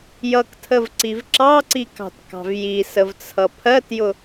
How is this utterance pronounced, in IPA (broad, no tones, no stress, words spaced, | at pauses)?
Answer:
jʌktʰəvǀiv ǁɑǀikɑ̤tkɑ̤v jisəvt͡sʰʌ pʰɜtjʊ